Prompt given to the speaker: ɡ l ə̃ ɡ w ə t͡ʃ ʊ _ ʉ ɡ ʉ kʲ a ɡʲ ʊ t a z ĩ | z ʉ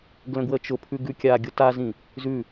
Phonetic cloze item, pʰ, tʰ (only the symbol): pʰ